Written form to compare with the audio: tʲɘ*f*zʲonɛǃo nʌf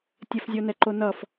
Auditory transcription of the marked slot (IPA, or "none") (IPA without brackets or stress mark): f